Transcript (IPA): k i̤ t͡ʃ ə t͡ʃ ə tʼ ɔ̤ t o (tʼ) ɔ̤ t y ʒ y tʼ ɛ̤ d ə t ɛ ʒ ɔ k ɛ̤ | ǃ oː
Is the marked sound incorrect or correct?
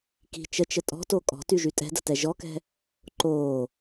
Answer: incorrect